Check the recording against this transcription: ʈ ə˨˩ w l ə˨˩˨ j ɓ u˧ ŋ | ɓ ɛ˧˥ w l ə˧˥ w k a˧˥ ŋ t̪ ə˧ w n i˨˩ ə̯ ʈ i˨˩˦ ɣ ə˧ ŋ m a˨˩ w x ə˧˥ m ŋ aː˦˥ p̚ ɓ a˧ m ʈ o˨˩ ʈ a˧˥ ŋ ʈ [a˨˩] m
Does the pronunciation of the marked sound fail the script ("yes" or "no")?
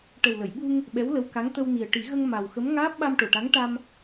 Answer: yes